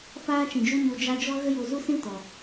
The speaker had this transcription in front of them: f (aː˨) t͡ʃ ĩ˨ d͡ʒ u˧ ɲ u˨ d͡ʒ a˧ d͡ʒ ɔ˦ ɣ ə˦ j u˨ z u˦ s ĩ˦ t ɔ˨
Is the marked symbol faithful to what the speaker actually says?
no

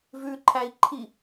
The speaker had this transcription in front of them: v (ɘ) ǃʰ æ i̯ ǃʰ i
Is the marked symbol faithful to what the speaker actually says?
no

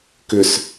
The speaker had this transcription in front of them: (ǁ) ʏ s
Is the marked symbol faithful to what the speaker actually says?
no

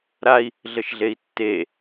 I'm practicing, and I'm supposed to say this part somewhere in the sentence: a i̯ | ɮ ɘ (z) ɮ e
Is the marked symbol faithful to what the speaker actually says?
no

